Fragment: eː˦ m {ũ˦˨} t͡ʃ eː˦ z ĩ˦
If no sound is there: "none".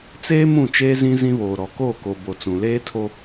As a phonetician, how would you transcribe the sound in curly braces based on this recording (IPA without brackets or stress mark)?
ũ˦˨